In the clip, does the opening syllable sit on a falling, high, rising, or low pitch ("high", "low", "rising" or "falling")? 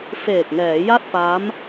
low